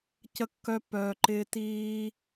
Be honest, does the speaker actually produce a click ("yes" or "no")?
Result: yes